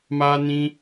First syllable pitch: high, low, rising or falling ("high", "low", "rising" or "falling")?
high